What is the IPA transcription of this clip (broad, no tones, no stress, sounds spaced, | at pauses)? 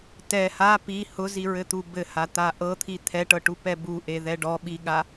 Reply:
t ɛ h a p i h ʊ z i ɹ ɘ t̪ u b ɘ h a t̪ a ʔ ɤ t̪ʰ i t̪ʰ ɛ ʈ ɤ ʈ u p ɛ b u ʔ e ð ɛ ɖ ɔ ɓ i ɠ a